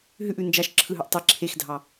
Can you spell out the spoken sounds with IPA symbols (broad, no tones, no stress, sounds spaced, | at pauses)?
ɦ ʉ ʔ ʉ n d͡ʒ ɑ ʃ ǁʰ ɯ ɦ ʉ ʔ tˤ i ǁʰ e x dʱ ɑ